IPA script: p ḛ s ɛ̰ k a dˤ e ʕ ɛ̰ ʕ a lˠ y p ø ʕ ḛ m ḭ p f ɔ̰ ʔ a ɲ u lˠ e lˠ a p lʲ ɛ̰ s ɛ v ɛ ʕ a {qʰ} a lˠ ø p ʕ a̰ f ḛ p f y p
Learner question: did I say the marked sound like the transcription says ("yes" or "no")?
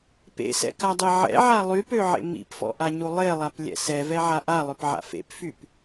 no